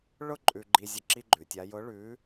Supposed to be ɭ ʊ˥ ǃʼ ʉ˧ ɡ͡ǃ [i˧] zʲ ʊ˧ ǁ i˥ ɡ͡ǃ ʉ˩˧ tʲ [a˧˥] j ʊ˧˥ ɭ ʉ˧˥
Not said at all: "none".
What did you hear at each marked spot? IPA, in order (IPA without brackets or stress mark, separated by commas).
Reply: i˧, a˧˥